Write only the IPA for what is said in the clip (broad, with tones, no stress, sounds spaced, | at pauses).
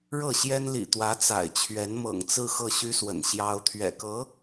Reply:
ɻ ɤ˥˩ ɕ j ɛ˥ n l ḭ˨˩ t̪ w ä˧˥ t͡s a̰˨˩ ɪ̯ t͡ɕʰ ɥ ɛ˧˥ n m ɤ̰˨˩ ŋ t͡s ɹ̩˥˧ x ɤ˥˩ ɕ y˥ s w ə̰˨˩ n ɕ j ɑ˥ ʊ̯ t̪ʰ ɥ ɛ̰˨˩ k ɤ˧˥